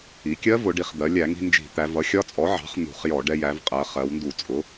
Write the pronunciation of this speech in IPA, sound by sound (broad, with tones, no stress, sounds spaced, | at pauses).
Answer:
i˩˧ kʲ ɜ˦˥ v ʊ˩˧ ɖ i˩˧ χ d̪ ɜ˩˧ lʲ æ˧˩˧ ŋ i̤˧ n d͡ʒ i̤˧˩˧ t̪ æ˩˧ v ʌ˩˥ xʲ ɒ˦˥ t͡sʼ ɔ˩˥ ʕ ɑ̤˩˥ χ n̪ ṳ˧˩˧ χ j ɔ˧˩˧ ɖ ɛ˧ j æ˩˧ v qʼ ɜ˩˧ χ ɜ˩˧ w n d u˧˩˧ t͡sʼ ʊ˩˥